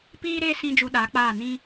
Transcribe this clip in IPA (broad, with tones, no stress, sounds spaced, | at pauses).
p iː˦ ɾ eː˦ s ĩ˦ d͡ʒ u˧ ɗ a˨˦ k͡p aː˦˨ n ĩ˦